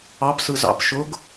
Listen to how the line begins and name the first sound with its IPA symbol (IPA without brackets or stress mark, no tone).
ɑ